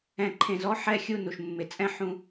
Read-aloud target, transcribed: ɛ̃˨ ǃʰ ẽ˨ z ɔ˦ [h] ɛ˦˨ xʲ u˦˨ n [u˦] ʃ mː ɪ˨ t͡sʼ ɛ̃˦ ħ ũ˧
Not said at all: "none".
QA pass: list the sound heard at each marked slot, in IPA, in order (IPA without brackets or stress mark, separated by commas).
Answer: ħ, u˨